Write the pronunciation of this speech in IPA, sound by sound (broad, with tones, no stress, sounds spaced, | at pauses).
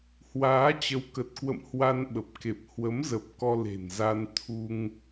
h w aː˨˦ t͡ɕ ə˨˦ w k ə˨˩ t̚ k w ə̰˧˨ m h w a˧ n ɓ ə˨˩ p̚ k e˨˩ p̚ h w ə˨˦ m z ə˨˩ p̚ k ɔ˧ l e̤˨˩ n z a˧ n t̪ʰ u˧ ŋ